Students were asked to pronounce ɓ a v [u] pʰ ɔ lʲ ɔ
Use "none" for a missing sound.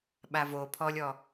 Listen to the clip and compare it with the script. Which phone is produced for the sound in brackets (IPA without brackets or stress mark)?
o